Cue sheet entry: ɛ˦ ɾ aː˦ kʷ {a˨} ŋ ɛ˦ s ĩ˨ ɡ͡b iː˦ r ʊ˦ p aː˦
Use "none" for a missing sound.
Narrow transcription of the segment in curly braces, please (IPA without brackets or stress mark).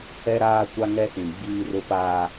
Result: a˦